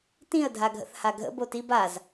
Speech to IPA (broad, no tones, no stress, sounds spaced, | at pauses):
t ĩ ə̯ dʱ a ɡʱ ə̰ θ h a ɡʱ ə̰ b o t i b a z